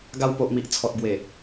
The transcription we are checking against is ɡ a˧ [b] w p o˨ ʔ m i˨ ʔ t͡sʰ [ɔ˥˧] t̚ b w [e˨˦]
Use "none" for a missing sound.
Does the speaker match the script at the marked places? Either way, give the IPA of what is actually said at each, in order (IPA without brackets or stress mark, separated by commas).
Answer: none, ɔ˨, e˨˩